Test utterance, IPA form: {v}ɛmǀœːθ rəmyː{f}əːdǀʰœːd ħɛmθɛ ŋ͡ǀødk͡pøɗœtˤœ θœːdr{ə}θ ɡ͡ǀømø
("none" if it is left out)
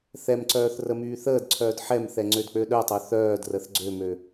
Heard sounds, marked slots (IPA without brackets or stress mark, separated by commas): θ, θ, ə